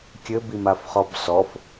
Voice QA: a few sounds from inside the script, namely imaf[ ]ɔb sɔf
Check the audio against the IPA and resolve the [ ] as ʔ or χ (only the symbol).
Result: χ